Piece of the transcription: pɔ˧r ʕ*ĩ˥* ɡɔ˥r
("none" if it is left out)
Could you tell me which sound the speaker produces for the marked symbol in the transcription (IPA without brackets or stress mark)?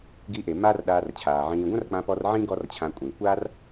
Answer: ĩ˥